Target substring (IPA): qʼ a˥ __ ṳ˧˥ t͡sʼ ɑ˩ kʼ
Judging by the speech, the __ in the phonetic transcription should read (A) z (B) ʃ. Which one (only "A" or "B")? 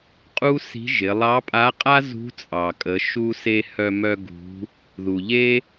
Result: A